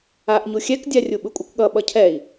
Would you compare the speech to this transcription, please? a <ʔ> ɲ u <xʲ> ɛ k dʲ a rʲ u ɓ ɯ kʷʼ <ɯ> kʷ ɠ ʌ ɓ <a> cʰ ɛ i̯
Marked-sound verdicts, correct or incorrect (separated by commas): correct, correct, correct, incorrect